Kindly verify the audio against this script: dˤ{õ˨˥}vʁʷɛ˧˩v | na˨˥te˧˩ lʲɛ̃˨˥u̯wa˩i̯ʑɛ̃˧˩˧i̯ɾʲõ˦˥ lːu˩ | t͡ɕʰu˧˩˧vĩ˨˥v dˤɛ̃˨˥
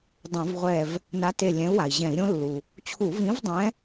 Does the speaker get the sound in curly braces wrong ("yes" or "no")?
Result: yes